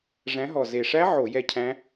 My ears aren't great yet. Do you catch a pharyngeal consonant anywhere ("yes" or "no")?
yes